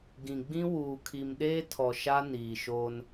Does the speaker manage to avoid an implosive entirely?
no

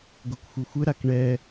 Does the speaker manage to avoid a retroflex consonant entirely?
no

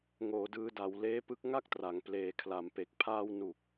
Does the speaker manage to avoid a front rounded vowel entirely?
yes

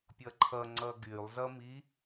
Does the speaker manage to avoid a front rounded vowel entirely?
no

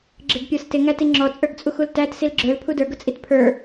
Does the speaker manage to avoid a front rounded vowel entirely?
yes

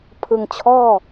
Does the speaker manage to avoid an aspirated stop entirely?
no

